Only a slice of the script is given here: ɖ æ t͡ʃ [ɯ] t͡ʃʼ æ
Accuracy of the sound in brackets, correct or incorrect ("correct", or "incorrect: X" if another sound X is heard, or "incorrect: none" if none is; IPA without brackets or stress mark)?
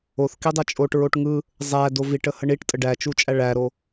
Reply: incorrect: u